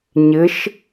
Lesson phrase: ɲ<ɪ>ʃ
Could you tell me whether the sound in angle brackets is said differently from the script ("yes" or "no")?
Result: no